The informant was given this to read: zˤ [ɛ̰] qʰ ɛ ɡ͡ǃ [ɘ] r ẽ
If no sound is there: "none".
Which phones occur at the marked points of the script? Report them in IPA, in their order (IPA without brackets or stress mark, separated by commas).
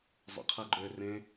ɛ̰, ø